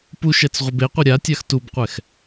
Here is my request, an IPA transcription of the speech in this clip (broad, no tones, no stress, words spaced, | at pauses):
puʃɛt͡s ʁʷɯbeqʷɯ ɾʲatʲax tubqʷɛx